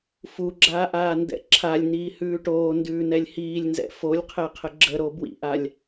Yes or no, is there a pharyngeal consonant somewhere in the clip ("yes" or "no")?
no